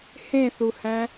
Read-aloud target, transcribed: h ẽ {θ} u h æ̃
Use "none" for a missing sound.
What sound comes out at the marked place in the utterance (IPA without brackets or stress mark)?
θ